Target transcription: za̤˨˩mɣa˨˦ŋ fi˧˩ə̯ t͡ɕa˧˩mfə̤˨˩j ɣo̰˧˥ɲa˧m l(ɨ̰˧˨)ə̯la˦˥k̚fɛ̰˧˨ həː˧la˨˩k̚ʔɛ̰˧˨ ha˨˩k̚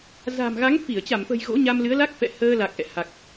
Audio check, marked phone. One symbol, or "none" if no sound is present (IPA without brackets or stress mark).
ɨ˨˦